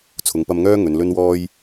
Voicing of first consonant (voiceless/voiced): voiceless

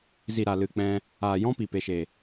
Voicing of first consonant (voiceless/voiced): voiced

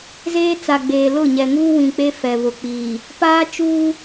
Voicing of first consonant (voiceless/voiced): voiced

